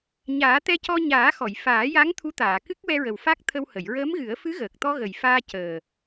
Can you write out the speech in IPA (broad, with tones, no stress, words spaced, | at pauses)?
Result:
ɲaː˨˩˦t̪ɛ˧cɔ˧ ɲaː˨˩˦xɔ˨˩˨j faː˨˩˦ja˧˥ŋ t̪ʰu˧˥t̪aː˨˩˨kɨ˦˥k̚ wɛ˧ɹə˨˩wfa˦˥k̚ t̪ʰə˧w hə˨˩˨jɹəː˧˥mɣɨ˨˩˦ə̯ fɨ˧˥ɣəː˨˩k̚t̪ɔ˧ ɣə˨˩jfaː˧ cəː˨˩